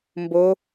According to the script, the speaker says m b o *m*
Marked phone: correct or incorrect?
incorrect